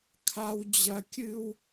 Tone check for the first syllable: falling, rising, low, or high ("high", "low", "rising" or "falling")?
high